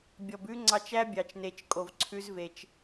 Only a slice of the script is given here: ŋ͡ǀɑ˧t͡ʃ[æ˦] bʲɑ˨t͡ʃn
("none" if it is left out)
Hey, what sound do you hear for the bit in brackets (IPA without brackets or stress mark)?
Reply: æ˦